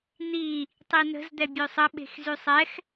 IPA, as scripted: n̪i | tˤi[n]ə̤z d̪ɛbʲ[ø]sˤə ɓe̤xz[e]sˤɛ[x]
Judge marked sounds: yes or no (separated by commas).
yes, yes, no, yes